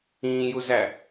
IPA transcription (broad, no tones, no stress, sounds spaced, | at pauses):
ĩː j u z æ